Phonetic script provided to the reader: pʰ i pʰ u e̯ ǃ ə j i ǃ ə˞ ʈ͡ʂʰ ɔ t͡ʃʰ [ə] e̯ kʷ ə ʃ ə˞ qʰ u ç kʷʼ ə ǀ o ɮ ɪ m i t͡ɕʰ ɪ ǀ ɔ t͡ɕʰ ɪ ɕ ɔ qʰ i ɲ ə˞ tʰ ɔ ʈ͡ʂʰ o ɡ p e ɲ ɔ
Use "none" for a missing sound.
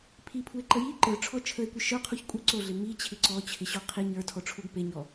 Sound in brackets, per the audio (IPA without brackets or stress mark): ə